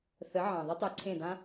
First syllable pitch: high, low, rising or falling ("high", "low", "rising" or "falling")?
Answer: rising